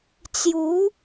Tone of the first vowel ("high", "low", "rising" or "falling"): rising